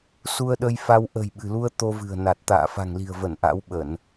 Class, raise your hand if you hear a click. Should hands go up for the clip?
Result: no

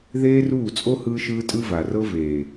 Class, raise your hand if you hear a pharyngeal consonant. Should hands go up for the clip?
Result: no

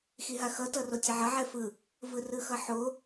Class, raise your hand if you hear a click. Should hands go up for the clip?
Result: no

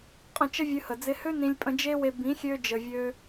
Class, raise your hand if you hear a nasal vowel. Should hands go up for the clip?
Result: yes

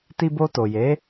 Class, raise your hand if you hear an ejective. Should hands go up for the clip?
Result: no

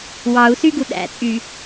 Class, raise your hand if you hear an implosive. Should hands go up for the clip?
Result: yes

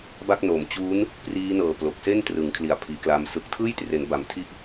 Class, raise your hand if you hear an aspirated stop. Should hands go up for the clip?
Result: yes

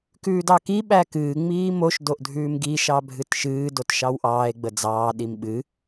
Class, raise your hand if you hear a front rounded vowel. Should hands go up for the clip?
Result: no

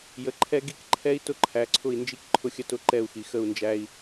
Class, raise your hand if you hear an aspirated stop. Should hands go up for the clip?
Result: yes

